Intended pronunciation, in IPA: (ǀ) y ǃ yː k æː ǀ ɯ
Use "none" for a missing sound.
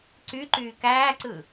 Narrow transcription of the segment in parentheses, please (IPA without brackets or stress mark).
ǀ